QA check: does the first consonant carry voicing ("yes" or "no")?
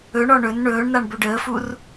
yes